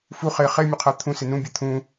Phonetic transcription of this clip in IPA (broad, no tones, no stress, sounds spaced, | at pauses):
f u χ e χ e mʲ ʊ qʰ a t̪ʰ ũ s ɪ n ũ bʲ e t̪ʰ ũ